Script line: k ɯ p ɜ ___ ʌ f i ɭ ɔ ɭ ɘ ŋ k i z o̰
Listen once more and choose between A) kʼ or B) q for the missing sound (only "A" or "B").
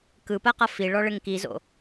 B